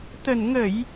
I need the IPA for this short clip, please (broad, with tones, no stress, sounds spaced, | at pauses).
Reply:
t̪ ə˨˩ n ŋ ə˧˩˨ j